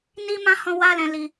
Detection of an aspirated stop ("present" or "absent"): absent